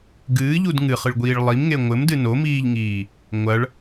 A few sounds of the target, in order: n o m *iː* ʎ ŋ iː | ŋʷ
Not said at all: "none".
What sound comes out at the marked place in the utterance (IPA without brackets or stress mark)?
iː